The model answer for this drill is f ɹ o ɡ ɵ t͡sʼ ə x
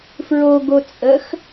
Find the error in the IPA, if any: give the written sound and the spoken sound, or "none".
ɵ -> o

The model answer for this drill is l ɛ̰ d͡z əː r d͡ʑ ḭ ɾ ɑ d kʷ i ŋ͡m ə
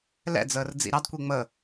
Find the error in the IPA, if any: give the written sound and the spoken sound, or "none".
d͡ʑ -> d͡z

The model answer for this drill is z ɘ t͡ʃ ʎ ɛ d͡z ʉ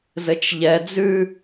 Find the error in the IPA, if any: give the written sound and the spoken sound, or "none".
none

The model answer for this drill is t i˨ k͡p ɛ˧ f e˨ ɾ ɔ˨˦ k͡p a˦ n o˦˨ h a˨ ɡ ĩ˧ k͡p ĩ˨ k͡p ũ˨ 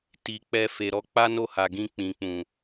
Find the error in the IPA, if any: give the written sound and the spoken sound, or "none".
none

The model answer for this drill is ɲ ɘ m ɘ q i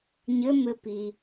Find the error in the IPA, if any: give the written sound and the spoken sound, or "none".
q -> p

